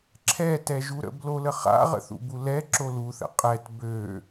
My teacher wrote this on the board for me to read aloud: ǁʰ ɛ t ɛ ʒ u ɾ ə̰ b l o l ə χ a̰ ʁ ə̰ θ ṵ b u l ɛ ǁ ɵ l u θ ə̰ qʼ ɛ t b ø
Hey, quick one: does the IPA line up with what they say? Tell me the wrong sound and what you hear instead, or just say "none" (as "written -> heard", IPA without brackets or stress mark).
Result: ɵ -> o